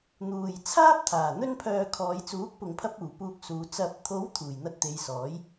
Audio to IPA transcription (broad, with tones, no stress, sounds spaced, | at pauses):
n̪ uː˨ j t͡sʰ aː˥ p̚ t̪ʰ aː˨˩ n̪ ɵ˧ n pʰ œː˨ kʰ ɔː˨˧ j t͡s uː˨˥ k̚ p ʊ˨ ŋ pʰ ɐ˧ p̚ uː˨˩ p uː˧ k̚ s uː˨˧ t͡s ɐ˨ p̚ t̪ʰ o˨˥ w t̪ʰ uː˨˩ j n̪ ɐ˧ t̚ t̪ e˨˧ j s ɔː˨˥ j